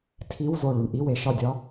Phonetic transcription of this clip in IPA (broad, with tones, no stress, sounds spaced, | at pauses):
tʰ i˧˥˧ w z o˧˩ ɭ u˩ ɳ ʔ i˧˥˧ w e˩ ʃ ɒ˥˩ dʲ ɒ˧˥